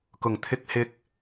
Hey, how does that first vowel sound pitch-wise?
low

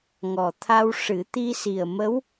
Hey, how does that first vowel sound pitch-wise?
low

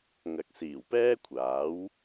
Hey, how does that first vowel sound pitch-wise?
low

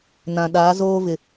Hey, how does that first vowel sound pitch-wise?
low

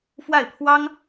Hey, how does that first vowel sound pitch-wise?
falling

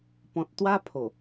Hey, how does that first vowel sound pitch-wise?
low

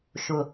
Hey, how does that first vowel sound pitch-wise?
low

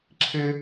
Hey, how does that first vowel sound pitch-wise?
high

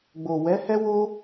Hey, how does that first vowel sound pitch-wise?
low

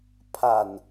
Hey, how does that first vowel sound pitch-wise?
low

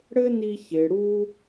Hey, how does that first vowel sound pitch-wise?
high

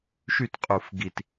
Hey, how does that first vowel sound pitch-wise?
falling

